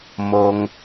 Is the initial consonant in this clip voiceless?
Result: no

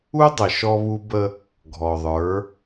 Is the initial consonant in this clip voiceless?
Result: no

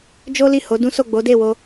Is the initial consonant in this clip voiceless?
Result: no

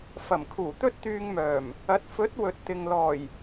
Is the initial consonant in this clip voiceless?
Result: yes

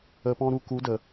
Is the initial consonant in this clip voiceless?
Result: yes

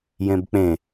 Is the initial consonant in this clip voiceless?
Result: no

